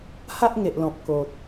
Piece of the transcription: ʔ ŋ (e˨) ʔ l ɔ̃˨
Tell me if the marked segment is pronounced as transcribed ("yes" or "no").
yes